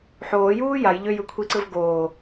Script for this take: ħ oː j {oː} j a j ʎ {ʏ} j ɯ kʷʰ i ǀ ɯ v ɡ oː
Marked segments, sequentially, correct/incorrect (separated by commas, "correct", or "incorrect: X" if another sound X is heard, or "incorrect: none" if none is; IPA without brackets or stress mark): incorrect: uː, correct